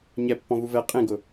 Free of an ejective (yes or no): no